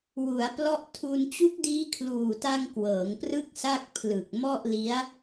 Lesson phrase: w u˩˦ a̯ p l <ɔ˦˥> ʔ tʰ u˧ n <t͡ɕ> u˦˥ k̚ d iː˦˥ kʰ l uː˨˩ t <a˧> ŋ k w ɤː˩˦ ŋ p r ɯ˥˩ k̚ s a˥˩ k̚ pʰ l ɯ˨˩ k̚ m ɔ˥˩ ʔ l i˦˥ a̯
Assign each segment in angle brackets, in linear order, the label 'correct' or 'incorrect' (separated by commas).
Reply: correct, correct, correct